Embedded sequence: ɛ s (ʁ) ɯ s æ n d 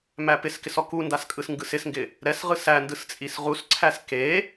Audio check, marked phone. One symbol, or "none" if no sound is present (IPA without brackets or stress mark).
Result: ʁ